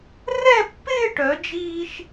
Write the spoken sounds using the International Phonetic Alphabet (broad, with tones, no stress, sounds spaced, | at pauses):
r ɛ˥˧ pː ɪː˥˧ ʈ œ˩˧ d͡ʒ iː˧ ʃ